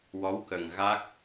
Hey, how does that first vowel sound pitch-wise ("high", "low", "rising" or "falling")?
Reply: rising